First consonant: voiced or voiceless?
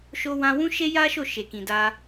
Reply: voiceless